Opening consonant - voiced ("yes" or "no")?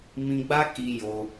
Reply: yes